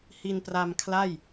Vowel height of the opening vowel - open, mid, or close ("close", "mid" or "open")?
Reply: close